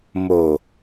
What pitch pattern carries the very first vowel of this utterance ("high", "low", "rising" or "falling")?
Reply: low